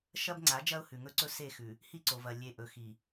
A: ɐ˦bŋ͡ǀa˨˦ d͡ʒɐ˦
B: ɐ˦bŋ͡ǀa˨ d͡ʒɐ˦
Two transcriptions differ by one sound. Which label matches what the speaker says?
A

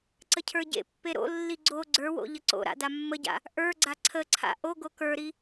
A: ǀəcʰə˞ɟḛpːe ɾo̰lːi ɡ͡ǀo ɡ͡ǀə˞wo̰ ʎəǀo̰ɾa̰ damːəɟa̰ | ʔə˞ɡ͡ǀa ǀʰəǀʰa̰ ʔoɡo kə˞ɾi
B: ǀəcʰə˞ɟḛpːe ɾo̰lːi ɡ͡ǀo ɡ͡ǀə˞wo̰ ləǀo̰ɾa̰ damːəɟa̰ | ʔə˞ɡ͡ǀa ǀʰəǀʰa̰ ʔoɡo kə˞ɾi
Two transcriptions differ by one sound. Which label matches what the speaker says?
A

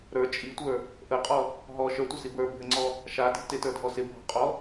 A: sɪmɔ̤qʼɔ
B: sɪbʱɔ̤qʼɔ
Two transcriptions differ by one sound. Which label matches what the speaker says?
B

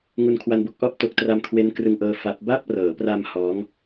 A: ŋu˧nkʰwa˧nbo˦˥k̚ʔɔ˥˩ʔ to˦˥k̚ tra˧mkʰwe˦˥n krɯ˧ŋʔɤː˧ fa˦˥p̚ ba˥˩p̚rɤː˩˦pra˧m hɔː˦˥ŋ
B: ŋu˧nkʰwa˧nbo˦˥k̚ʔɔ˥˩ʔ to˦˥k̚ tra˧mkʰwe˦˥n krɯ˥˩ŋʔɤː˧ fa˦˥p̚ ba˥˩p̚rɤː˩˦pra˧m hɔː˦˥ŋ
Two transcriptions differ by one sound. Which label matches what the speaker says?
A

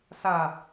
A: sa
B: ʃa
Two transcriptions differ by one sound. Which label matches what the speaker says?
A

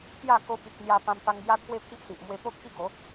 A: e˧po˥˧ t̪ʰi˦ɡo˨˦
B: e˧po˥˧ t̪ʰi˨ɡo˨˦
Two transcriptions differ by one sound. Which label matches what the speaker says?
A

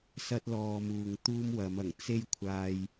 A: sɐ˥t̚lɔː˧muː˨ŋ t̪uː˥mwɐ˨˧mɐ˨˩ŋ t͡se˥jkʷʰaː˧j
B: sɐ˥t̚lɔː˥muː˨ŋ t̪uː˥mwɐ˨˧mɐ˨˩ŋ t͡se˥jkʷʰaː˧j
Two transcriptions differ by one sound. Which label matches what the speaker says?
A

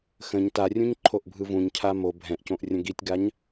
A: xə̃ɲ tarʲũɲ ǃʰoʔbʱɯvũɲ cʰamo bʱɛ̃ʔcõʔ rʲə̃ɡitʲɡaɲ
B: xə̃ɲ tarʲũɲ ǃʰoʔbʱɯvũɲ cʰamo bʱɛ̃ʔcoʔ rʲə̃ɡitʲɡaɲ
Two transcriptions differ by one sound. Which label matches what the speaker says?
A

